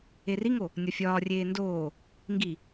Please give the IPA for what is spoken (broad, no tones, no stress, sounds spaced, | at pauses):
e r i ŋ o | nʲ ɒ fʲ ɒː rʲ eː n d oː | ŋ ɡ i